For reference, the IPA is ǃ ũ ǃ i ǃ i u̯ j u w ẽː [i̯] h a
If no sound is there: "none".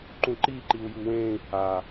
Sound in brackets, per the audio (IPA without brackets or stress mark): i̯